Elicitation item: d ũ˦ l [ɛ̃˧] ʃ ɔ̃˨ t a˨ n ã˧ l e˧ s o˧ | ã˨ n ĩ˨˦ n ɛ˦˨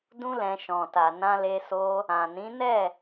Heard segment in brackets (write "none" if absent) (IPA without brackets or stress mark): ɛ̃˧